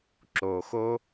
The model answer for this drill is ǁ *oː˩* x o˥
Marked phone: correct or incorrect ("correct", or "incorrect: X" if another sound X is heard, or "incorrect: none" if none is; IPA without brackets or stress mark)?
correct